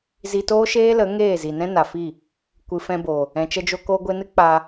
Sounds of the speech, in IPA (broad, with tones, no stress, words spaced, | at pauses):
zi˧toː˦ʃeː˦lə˨˦ ŋeː˦˨ zi˨nɛ̃˦na˨fi˦˨ | kʷɨ˨fɛ̃˧bo˨ | ɛ̃˨t͡ʃə˧d͡ʒo˧ ko˧ɡʷe˧nɨ˦ k͡pa˧